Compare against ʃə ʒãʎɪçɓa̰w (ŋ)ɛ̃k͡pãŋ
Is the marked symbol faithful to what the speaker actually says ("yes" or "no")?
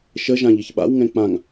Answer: yes